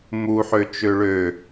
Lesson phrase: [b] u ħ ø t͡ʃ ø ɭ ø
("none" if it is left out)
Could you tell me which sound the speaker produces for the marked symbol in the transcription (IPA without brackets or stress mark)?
m